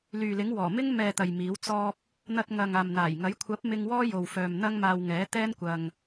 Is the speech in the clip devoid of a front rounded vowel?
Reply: no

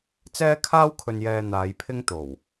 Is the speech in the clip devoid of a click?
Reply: yes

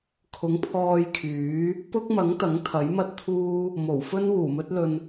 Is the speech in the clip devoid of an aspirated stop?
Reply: no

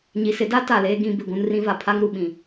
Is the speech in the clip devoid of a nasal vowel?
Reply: no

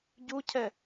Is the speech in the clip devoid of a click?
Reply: yes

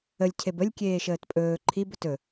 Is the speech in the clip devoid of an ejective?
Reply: no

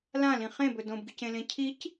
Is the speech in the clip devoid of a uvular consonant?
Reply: no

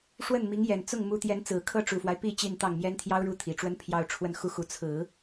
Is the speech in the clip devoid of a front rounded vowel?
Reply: yes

